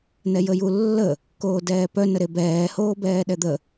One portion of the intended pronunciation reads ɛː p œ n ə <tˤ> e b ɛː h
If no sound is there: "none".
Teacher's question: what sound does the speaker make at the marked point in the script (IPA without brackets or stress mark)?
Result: ɾ